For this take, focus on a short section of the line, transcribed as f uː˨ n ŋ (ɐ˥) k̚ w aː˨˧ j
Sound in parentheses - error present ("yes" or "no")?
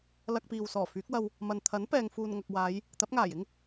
yes